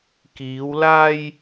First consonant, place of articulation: velar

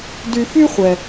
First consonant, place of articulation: alveolar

